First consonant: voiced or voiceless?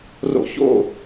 voiced